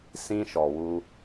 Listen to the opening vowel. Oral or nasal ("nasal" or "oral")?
nasal